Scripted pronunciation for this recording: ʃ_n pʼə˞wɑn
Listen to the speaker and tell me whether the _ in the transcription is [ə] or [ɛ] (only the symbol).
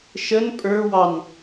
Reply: ə